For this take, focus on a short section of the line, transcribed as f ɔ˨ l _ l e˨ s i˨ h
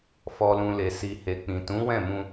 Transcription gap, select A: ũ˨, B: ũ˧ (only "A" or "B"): A